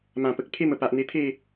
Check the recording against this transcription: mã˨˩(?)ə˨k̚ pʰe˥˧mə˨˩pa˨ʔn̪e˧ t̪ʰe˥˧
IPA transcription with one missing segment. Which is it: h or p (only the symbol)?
p